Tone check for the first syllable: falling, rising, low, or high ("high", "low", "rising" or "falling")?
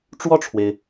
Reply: falling